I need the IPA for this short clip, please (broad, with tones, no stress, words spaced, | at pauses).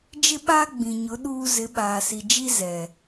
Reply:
d͡ʒɪ˦ɓaː˦ɡ͡bĩ˨ɲʊ˨˦ ɗuː˦ zɪ˨˦ɓaː˨si˨d͡ʒi˦ zɛ˨